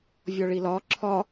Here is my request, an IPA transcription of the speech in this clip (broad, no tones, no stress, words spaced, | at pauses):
vʲɔɭilɒ ǁʰɒ